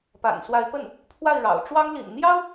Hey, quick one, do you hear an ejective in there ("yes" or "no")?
no